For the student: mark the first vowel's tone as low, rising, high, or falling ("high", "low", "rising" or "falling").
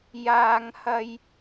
high